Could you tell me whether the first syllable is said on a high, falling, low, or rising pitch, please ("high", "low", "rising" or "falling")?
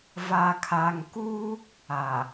low